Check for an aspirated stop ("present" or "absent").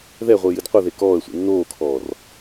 present